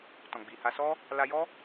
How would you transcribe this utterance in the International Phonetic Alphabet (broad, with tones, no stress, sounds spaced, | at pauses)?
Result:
t ɔ̃˨ ɡ͡b i˨ h a˧ s ɔ˦ | l a˧ j ɔ˦